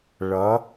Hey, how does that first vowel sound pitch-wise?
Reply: rising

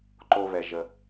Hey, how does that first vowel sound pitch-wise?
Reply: low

